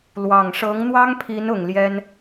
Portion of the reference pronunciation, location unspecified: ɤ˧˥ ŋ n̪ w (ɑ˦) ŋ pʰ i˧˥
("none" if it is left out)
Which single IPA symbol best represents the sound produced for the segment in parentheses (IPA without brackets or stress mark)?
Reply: ɑ˥